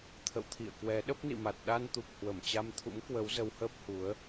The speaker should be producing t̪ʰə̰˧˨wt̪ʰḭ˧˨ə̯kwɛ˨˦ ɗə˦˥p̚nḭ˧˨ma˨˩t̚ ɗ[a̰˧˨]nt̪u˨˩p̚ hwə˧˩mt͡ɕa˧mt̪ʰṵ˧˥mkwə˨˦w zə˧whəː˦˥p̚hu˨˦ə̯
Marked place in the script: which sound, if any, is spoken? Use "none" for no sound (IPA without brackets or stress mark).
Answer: a˧